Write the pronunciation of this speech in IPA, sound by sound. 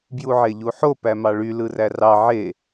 b j u ʕ e ʎ u ħ o p æ m ɑ ɭ y l ɯ r æ r ɑ ʕ e

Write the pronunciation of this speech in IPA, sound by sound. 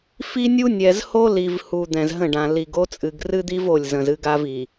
f i˦ nʲ u˦ nʲ ɛ˨ z h o˦ l i˨ v h u˨ d̪ ɛ̃˨ z ɦ ə̃˦˨ ɖ ã˨ l i˨ ɡ o˦ t͡sʼ ɨ˨ ɡ r ɨ˦ d̪ i˦ v o˦˨ lʲ z ə̃˨ z ɨ˦ ɡ a˦ v i˨

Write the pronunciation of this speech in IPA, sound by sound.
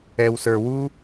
ɛ˨ w s ə˞˨ w u˥

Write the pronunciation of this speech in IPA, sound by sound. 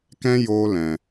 k ɛ̃˦ j o˦ l ɛ̃˧

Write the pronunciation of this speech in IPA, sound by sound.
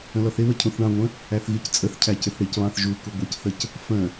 ə̃ l ɔ θ ɪ β ə cʰ ũ θ ɳ ɑ̃ ŋʷ ə̃ | æ θ ɣ i c t͡sʼ ə θ cʰ æ c ɪ θ ɽ i c β ɑ̃ θ ʒ u k u ɡʷ ɪ c θ ə c | f ə̃

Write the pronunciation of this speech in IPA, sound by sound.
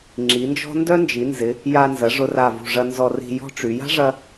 ŋ͡ǁ i˩˧ n d͡ʒ ɔ̤˥ n d œ˥ n d͡ʒ i˩˧ n z ɪ˩˧ | j a˧ n z ɐ˩˧ ʐ ʊ˧ r a˧˩ v ṳ˧˩ ʐ ɐ˧ n z ɔ˧ r i̤˧ j ɔ̤˥ ʈ͡ʂ y˩˧ j a̤˥ ʐ ɐ˧

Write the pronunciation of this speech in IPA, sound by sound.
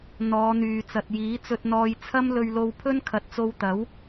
n̪ ɔː˨˧ n̪ yː˨ t͡s ɐ˨ t̚ j iː˨˥ t͡s ɵ˧ t̚ n̪ ɔː˧ j t͡sʰ ɐ˥ m l ɵ˧ ɥ l o˧ w pʰ ɵ˥ n kʰ ɐ˨˥ t̚ t͡s o˧ w t̪ ɐ˨˥ w

